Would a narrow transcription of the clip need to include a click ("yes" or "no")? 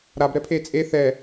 no